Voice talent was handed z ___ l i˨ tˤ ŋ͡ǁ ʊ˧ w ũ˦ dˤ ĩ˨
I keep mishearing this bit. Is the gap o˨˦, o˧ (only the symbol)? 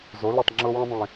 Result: o˨˦